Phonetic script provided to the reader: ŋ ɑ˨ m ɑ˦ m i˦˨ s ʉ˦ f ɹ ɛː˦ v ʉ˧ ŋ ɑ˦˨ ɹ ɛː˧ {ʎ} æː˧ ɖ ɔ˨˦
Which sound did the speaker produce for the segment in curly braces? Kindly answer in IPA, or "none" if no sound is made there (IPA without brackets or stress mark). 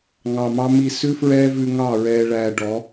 ɭ